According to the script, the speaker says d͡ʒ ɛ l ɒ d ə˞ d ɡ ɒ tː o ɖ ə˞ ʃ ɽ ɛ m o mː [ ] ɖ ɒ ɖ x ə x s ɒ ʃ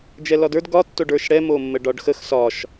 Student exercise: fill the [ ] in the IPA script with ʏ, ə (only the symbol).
ə